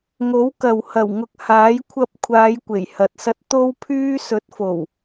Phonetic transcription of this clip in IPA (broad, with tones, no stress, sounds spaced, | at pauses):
ŋ o˨˥ w k ɐ˨ w h ɐ˨˩ w ŋ ʊ˨ k̚ h aː˨˥ j kʷʰ ɐ˧ p̚ kʷʰ aː˨˧ j kʷ e˨˩ j h ɐ˨ t̚ s ɐ˧ t̚ t̪ o˧ w pʰ yː˧ s ɵ˨˥ t̚ f o˨˩ w